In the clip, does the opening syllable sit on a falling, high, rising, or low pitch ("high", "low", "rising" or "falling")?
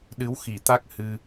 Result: rising